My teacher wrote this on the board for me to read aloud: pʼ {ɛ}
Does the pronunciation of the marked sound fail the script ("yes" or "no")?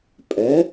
no